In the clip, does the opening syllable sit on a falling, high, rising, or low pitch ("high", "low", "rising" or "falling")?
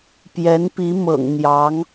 rising